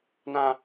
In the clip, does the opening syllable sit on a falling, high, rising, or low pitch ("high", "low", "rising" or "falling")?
high